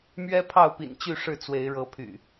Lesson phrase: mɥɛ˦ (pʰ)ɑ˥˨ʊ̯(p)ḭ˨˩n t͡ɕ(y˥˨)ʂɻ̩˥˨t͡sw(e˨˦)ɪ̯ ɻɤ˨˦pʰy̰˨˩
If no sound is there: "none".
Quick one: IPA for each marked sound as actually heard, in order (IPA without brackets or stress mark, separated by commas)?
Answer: pʰ, p, y˥˨, e˨˦